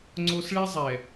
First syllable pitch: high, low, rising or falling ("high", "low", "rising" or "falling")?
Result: high